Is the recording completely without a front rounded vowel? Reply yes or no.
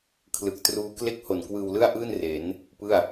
yes